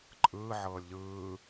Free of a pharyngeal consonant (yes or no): no